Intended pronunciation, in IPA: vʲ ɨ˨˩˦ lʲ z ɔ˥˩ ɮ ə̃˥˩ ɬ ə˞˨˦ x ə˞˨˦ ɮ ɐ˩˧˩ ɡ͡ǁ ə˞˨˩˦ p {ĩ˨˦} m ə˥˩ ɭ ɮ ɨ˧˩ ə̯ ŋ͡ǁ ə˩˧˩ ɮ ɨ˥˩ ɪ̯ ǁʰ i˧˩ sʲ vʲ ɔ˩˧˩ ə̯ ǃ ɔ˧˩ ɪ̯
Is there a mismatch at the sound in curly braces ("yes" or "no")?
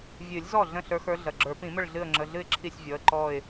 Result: yes